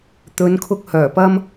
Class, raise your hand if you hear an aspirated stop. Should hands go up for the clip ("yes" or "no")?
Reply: yes